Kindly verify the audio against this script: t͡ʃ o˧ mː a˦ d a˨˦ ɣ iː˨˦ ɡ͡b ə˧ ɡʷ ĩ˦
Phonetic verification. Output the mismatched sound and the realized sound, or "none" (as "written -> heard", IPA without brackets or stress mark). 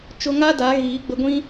mː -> ŋ